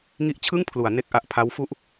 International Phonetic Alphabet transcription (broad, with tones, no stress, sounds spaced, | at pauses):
ŋ i˦˥ ʔ t͡ɕʰ ɯ˥˩ ŋ pʰ l u˩˦ a̯ n e˦˥ k̚ ʔ a˨˩ ʔ pʰ a˦˥ w f u˥˩ ʔ